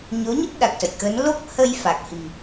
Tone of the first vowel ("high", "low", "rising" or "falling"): rising